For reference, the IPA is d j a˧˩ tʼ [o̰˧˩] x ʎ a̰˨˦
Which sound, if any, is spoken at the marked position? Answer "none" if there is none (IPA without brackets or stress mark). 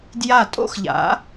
o̰˥˧